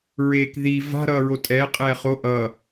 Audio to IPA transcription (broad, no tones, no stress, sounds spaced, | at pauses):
ɹ eː k ð i v a̤ ɾ ʌː ɹ o tʼ ɛː qʼ ɛː χ o ʔ ʌ